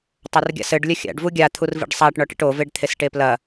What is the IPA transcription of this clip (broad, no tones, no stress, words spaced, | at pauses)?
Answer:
tˤɐrɡʲa̰sɘɖ lʲɐxʲa̰ɖ vuɡʲa t̪ʰurvḭɖsˤaʈ ɳɔʈḭʈo veɖt̪ʰesʈeplɐ